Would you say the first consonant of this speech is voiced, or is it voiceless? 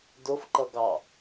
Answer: voiced